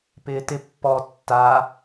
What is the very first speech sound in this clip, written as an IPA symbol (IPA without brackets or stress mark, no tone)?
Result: p